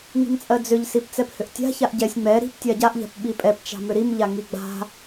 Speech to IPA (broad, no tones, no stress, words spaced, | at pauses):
ŋi̤mt͡sʼɜd͡zʏʎ sipt͡sɛphʏʔtʲa̤ çaʔɟɛsʲ ŋ͡mɛ ɾi̤p tʲaɟaʔ ʎa̤pɓipʼɛp t͡ʃa̤mʏɾim ʎaŋiɡ͡ba̤